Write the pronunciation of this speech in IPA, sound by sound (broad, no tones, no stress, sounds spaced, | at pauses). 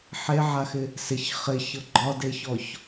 ħ e ʕ a x ɪ | s ɪ ç χ ɪ ç ɤ ɡ͡ǃ ɒ d e ç ɔ ç